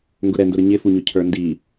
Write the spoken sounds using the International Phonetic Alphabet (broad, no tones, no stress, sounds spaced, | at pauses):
ŋ ɡ ʊ ɾ ɛ n d ʊ ɾ ə ɲ ɪ f u ɲ ʊ cʰ ə˞ n d i